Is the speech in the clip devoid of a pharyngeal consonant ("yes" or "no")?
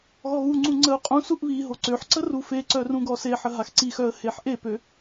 no